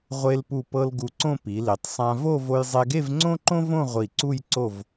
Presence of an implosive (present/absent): absent